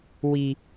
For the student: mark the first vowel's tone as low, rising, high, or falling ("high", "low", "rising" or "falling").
low